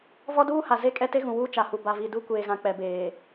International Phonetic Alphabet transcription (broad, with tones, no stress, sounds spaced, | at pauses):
v ɔ˦ d uː˦ h a˨ z e˦˨ kʼ ɛ˦ t e˦ ɣ ũ˨ w uː˦ t͡ʃ a˨ h u˨ b a˨ v i˨ d u˦ kʷ eː˨ ɣ ã˨ k͡p ɛ˨ b eː˨